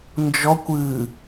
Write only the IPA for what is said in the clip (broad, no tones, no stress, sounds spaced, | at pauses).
n d͡ʒ ɔ kʷ ɨː